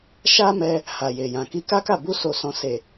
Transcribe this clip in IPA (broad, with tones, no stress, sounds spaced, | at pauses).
ʃ a˦ m ɛ˧ | h a˨ j e˨ j ã˨ k i˧ k a˦ k a˦˨ b u˧ s o˨ s ɔ̃˨ s e˨